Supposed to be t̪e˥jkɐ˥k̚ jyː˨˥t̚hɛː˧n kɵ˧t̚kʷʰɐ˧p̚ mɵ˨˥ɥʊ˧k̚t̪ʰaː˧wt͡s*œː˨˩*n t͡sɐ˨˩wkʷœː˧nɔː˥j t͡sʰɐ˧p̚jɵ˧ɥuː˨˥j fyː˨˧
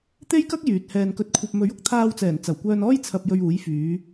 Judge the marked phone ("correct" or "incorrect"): incorrect